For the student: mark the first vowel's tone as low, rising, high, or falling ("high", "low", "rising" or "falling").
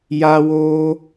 high